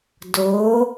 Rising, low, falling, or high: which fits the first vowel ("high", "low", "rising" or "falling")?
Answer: rising